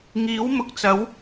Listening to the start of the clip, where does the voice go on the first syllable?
rising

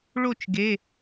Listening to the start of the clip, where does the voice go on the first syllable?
falling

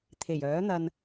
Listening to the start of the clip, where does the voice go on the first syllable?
low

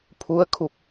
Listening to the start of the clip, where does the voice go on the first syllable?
rising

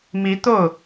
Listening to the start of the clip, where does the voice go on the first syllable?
rising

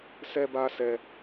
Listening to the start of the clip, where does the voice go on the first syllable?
high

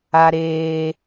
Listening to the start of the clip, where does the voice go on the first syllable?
low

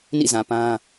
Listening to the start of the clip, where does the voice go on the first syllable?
falling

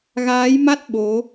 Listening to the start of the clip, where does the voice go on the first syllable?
rising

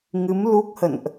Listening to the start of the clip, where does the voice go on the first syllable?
rising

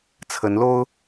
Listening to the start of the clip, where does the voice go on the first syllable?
rising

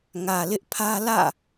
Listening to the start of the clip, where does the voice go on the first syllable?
low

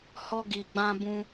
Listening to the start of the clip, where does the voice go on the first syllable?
high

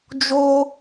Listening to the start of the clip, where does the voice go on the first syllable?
high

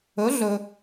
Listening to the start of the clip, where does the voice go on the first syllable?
rising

